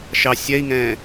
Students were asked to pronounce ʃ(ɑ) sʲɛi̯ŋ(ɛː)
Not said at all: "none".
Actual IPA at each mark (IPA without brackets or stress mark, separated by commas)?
ɑ, ɛ̃ː